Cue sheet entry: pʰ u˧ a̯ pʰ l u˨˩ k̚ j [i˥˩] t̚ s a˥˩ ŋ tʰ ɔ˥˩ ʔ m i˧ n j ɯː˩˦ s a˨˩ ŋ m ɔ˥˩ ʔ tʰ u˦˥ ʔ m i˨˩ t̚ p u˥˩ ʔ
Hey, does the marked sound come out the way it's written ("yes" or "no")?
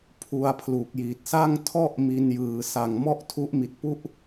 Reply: no